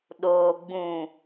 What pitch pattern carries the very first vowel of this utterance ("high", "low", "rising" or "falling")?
low